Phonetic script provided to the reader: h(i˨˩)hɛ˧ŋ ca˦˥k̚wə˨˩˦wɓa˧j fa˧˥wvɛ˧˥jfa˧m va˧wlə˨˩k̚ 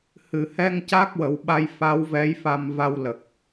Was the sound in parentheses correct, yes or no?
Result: no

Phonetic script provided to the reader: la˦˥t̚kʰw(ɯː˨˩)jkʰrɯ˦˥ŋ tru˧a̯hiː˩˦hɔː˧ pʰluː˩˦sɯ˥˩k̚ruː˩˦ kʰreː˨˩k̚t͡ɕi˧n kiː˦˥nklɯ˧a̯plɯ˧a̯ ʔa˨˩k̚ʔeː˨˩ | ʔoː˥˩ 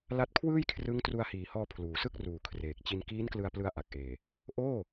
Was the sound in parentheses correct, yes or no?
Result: no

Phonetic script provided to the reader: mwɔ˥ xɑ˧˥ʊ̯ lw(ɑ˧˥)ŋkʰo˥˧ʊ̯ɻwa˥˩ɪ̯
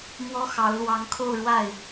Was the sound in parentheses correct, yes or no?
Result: yes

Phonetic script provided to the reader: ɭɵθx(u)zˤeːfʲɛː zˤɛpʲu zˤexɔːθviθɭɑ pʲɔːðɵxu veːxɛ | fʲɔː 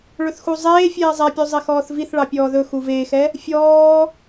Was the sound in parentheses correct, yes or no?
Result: yes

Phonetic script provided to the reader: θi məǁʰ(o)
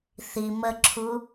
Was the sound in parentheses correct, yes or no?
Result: no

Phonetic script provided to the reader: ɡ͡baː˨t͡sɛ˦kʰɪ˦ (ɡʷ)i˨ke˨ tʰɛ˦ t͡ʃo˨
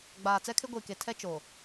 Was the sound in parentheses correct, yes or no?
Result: yes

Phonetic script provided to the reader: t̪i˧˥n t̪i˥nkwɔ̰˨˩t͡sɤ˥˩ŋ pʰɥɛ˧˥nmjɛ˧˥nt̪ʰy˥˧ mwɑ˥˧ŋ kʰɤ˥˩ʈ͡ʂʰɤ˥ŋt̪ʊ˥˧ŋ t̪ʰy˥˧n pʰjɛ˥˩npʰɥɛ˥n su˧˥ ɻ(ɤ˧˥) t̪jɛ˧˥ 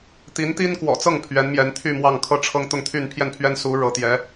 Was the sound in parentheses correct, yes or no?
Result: yes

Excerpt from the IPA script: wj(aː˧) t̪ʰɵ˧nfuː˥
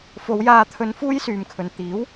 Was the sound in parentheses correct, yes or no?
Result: yes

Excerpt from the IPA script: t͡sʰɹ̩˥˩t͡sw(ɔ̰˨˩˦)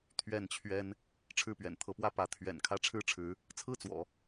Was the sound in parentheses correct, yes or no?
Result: yes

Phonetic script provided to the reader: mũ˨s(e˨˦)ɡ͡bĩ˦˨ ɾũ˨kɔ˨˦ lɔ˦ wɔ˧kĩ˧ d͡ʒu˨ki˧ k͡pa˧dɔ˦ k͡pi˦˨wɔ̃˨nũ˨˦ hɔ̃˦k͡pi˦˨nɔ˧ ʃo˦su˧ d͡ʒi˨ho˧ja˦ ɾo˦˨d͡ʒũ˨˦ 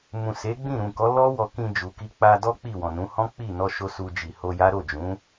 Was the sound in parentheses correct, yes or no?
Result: yes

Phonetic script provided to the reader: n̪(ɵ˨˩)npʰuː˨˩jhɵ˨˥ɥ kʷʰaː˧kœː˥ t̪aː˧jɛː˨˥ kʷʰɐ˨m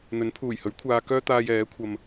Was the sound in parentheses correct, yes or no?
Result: no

